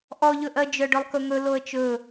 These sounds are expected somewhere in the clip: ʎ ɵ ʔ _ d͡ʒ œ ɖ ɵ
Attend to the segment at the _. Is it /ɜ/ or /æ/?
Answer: ɜ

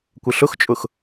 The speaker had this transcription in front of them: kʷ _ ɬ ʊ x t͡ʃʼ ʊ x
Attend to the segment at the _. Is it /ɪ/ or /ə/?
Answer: ɪ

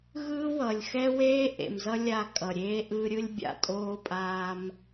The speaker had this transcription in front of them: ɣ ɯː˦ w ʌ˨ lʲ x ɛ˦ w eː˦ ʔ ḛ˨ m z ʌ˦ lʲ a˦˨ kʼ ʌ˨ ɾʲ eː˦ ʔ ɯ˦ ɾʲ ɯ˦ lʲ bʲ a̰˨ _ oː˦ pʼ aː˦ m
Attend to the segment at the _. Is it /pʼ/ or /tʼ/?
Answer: tʼ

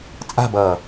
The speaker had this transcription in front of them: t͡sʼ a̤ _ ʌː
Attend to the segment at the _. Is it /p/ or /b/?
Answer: b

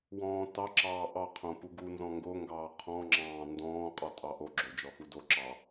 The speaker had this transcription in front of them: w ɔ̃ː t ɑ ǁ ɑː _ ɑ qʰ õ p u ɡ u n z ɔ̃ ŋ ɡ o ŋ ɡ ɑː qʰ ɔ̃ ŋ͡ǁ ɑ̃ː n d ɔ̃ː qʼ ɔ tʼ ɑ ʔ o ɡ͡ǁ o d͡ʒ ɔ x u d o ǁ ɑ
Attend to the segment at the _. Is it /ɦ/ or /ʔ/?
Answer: ʔ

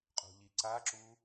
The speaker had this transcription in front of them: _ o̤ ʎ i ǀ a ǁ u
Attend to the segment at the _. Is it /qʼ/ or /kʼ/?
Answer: qʼ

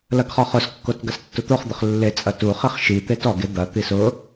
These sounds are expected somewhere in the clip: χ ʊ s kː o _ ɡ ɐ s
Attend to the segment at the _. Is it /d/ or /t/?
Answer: t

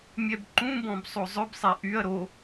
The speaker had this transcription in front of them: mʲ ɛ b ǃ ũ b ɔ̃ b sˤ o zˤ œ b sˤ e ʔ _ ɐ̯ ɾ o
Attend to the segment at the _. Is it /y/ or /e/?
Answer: y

